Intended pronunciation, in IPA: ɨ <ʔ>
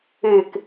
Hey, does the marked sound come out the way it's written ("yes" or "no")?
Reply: no